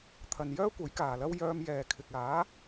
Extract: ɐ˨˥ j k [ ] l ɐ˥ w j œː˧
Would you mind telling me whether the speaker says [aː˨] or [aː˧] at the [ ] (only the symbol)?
aː˨